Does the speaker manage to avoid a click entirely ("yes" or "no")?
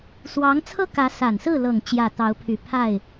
yes